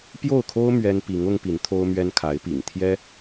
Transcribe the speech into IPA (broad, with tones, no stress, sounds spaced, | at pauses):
p j o˥˩ ʊ̯ kʰ o˥ ʊ̯ m ɥ ɛ˥ n p i˧˥ ŋ ʊ˥ ŋ p i˧˥ n t̪ʰ o˥ ʊ̯ m ɥ ɛ˥ n kʰ a˧˥ ɪ̯ p ḭ˨˩ ŋ t̪ʰ j ɛ˥